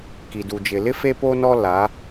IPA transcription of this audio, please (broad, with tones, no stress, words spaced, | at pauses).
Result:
ki˨du˨d͡ʒɪ˨lɪ˦ fe˦po˦nɔ˦ la˨˦